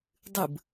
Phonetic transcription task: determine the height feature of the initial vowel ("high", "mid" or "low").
high